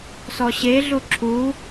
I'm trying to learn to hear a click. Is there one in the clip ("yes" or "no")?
yes